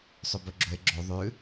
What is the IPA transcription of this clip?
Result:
sˤ ɵ b ɵ ɡ͡ǁ ɵ e̯ ɡ͡ǁ o ðˤ ʉ

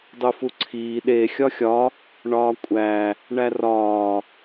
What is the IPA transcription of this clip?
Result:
dˤ u f u ǀʰ iː ɗ e xʲ ɒ xʲ ɒ | ɳ ɒː kʷʼ æ | ɳ æ r ɒː

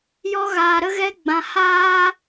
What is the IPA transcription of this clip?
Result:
j ɔ˧ ɣ aː˨ ɾ ə˧ ɣ ɛ˧ ɡ͡b ã˨ h aː˦

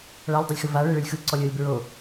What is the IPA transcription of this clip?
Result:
ɭ a lʲ dˤ o lʲ x ɯ v a ɭ e ɭ ɯ lʲ x ɯ ǀ ɔ lʲ ɤ lʲ b ɹ o

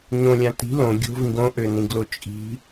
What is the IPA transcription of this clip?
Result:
ɲ õ lʲ ã t i̤ l õ ɡʲ o̤ v ĩ ɡ õ ʔ ø n ĩ ɡ l o t͡ʃʼ i̤

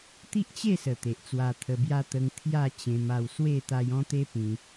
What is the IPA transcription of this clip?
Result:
t̪ i˦ ʔ t͡ɕ e˥˧ s ə˨˩ t̪ e˨ ʔ t͡s w a˧ t̪ʰ ə˧ b j a˦ t̪ ə˧ ŋ t̪ʰ j a˥˧ t͡ɕ ẽ˧ m a˧ w s w e˥˧ t̪ a˧ j ɔ̃˦ t̪ e˦ p ĩ˧

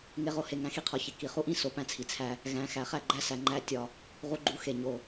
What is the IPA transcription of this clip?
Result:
ŋ e˧ ʁ o˧ h e˨ ŋ æ̃˧ x i˧ qʰ ɒ˨ ç e˨ k i˨ χ u˦ ʔ ĩ˦˨ s o˦ p æ̃˦ t͡sʰ i˨ t͡sʰ æ˦ | ɣ æ̃˨ x æ˨ χ æ˦˨ ɡ͡ǃ æ˧ s æ˨ ŋ͡ǃ æ˧ tʲ ɒ˨ | ʁ u˧ ɡ͡ǃ u˧ x e˨ ɲ o˨

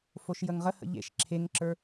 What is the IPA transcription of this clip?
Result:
f o ʃ j ə ŋ ʁ ə h ə̰ ʎ ḛ ʃ ǁʰ e ŋ ǁ ə˞

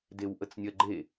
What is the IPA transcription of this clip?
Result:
d e w ʔ ə t͡s nʲ ɜ ɡ͡ǃ e

